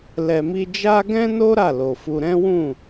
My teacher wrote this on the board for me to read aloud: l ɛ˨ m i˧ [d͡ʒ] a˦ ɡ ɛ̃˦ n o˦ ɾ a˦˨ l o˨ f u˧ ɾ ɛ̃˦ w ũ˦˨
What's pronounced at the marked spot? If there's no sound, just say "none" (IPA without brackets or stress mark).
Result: d͡ʒ